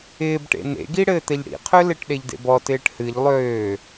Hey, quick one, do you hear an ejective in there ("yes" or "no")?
no